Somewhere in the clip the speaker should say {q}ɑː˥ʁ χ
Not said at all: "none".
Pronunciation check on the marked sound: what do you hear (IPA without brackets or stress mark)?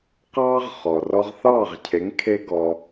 q